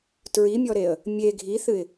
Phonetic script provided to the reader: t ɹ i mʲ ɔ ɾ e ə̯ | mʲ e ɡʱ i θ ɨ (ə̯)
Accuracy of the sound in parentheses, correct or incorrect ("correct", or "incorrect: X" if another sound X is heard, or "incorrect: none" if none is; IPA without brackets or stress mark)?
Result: incorrect: ɪ̯